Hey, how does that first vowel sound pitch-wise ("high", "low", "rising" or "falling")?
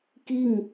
falling